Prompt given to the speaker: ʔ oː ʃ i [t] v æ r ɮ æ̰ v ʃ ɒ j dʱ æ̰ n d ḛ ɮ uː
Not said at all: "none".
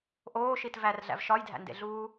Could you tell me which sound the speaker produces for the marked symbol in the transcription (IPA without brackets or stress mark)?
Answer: t